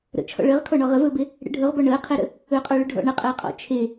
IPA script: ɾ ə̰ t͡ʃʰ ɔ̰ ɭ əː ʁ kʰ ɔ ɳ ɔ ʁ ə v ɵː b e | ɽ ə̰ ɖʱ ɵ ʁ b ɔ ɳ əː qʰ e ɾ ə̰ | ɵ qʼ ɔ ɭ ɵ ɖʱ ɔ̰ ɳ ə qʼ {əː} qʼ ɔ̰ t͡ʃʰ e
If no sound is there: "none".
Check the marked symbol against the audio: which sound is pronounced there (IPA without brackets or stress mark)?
əː